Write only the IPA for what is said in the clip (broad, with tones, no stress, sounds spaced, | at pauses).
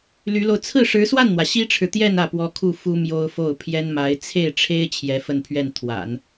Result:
l y˧˥ l o˧ ʊ̯ t͡sʰ ɹ̩˥˩ ʂ ɻ̩˧˥ s w a˥˩ n n̪ w ä˩ ɕ i˥ ʈ͡ʂʰ ɻ̩˨ t̪ j ɛ˥˧ n ä˥˩ p w ɔ˥ kʰ u˥˩ f u˥ m j o˥ ʊ̯ f o˥˩ ʊ̯ pʰ j ɛ˥ n m a˧˥ ɪ̯ t͡sʰ e˥˩ ɪ̯ ʈ͡ʂʰ e˥ ɪ̯ t͡ɕʰ j ɛ˧˥ f ə˥˧ n pʰ ɥ ɛ˥˩ n t̪ʰ w a̰˨˩˦ n